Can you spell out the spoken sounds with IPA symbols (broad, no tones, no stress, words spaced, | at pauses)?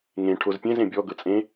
ŋẽ ʈʰozpʲẽz ẽbʲɔ ɡɤt͡sʼẽ